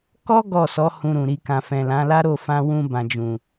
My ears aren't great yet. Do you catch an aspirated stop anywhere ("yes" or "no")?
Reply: no